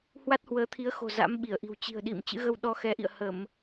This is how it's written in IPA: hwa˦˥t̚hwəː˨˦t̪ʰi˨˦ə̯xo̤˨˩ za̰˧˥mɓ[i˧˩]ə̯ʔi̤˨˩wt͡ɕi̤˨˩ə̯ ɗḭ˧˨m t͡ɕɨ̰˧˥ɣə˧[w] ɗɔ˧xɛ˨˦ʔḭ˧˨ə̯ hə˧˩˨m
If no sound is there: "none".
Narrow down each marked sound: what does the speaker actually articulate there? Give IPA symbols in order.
i˧˩, w

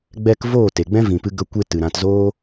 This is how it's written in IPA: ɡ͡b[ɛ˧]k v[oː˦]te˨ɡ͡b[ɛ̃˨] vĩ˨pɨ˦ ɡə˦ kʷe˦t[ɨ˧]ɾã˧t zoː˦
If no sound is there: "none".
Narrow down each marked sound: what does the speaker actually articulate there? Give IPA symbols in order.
ɛ˧, oː˦˨, ɛ̃˦, ɨ˨

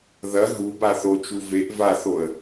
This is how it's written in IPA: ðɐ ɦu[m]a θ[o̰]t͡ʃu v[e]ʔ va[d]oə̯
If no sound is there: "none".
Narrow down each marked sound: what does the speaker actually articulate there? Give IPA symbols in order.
b, o, e, θ

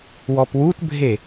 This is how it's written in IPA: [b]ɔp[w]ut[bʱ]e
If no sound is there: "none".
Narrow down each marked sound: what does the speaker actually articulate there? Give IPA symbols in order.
w, w, bʱ

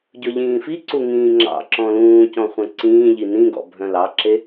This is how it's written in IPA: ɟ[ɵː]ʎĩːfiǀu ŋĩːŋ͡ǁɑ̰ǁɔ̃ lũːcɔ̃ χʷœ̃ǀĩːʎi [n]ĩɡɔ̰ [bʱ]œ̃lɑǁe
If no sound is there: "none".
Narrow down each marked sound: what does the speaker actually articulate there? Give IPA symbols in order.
ɵ, n, bʱ

